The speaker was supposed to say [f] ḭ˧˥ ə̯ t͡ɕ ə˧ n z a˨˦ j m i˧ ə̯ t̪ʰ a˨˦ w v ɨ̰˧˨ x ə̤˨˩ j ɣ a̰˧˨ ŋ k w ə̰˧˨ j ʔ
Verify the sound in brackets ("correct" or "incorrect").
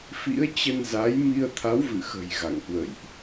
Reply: correct